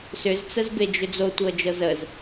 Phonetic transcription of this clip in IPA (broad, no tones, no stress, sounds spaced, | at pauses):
s ʏ z t͡s ə z b e d͡ʒ ʏ d͡z o tʷ ɤ d͡ʒ ɤ z ə z